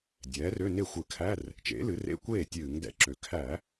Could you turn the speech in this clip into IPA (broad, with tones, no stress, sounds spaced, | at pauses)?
dʲ ɛː˩˥ r ø˧˥˧ n e˥˩ xʷ ɨ˧˩˧ kʰ æ˧˥˧ r | t͡ʃ ḛ˩˥ l ɨ˩˥ r ḛ˧˥˧ kʷ eː˥˩ tʲ ɨː˧˩˧ ŋ d ɛ̰˧˩˧ ǁ ø˨˩ kʰ æ˧˩˧